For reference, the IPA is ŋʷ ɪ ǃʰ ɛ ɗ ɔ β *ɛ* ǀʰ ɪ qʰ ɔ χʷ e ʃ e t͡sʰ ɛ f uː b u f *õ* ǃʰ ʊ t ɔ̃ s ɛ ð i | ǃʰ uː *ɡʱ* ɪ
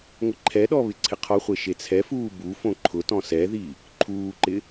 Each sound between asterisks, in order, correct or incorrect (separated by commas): incorrect, correct, incorrect